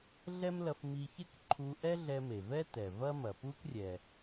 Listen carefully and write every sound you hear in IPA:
ɮ ɛ˥ m l ɐ˧ f m i˧ ç e˥ k ǃʰ u˧ ʔ ɛ˥ ɮ ɛ˧ m e˩ v ɛ˥ t ɛ˩ v ɐ˥ m ɐ˩ p u˥ k rʲ ɛ˩

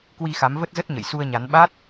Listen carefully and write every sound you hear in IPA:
k w i˧ x a˨˦ m v ə˦˥ t̚ z ə˦˥ t̚ ɲ ə̰˧˨ j s u˧ ə̯ ɲ a˨˦ n ɓ a˦˥ t̚

